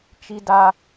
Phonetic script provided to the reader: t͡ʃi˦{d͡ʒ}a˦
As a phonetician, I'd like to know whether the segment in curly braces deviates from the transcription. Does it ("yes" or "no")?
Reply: yes